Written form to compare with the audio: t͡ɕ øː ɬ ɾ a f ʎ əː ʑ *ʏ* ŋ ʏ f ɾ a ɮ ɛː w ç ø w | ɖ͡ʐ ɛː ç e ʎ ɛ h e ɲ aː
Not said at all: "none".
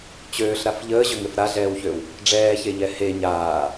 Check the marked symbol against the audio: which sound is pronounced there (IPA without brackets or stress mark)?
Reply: ʏ